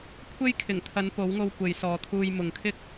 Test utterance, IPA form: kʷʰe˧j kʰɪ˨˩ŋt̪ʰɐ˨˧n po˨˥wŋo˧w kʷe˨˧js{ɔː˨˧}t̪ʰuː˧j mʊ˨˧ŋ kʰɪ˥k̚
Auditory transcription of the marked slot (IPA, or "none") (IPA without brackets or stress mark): ɔː˨˧